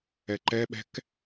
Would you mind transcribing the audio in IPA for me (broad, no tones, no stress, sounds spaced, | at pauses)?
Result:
ɛ ǃ ɛ ɓ ɛ̤ k